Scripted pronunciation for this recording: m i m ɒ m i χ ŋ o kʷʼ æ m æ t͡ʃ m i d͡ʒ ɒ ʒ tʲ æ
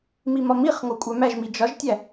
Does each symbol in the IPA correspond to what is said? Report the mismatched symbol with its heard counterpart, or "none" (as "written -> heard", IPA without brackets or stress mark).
t͡ʃ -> ʒ